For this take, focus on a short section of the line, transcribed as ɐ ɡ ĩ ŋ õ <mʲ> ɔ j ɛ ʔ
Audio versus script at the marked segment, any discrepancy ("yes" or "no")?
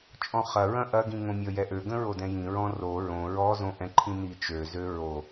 no